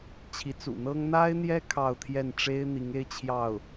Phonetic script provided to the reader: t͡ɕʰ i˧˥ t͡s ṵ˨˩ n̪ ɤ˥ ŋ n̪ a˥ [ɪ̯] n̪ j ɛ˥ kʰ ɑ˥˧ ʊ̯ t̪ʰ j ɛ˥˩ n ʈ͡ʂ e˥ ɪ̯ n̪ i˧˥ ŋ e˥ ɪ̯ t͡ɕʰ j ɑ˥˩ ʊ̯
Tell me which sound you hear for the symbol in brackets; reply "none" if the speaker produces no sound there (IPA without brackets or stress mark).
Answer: ɪ̯